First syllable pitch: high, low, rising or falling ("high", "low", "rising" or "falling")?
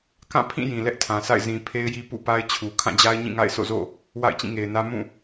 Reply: falling